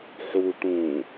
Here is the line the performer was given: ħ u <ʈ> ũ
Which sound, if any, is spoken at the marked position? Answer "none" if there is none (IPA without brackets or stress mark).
ʈ